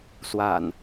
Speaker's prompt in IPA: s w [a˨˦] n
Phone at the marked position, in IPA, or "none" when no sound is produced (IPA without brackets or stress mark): a̰˨˩